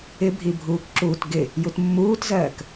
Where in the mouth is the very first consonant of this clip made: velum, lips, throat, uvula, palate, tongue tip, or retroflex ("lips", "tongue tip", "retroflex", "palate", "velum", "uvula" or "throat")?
lips